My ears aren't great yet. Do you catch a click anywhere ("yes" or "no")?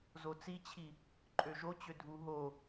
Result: yes